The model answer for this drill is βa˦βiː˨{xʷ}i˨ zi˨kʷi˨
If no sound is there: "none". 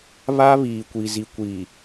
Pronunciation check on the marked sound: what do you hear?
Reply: kʷ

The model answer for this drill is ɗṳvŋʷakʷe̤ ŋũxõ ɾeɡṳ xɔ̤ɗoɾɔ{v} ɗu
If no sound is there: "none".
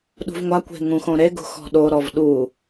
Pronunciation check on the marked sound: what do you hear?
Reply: v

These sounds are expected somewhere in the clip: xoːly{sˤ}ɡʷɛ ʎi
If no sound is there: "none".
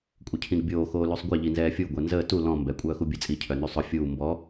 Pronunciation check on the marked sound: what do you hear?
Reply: sˤ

